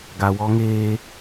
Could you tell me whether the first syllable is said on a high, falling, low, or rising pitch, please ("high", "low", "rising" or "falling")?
low